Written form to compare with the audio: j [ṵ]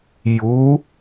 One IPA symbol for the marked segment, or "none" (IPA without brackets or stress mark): u